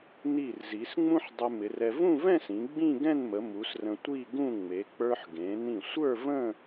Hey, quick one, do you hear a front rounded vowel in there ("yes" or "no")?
no